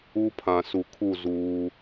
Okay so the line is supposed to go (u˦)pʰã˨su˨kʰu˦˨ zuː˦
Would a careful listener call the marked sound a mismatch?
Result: no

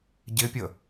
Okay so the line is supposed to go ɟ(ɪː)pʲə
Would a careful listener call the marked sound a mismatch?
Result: yes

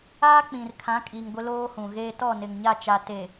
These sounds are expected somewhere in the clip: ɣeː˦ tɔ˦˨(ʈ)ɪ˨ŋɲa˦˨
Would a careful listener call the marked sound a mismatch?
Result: yes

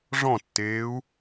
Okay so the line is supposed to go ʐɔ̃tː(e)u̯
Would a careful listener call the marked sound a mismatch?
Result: yes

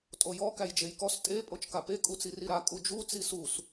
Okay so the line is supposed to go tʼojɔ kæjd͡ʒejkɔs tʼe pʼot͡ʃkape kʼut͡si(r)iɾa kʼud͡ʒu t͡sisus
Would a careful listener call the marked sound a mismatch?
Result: no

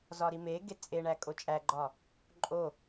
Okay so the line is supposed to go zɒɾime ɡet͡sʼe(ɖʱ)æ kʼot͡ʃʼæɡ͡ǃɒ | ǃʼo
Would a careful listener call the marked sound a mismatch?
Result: yes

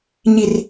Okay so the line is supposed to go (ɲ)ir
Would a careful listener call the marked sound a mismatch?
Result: no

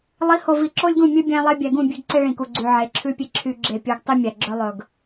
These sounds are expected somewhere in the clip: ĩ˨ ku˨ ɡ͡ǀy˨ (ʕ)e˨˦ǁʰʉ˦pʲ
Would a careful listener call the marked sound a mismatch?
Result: no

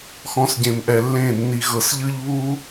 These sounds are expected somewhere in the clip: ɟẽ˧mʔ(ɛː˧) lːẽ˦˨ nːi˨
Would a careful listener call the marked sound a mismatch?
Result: yes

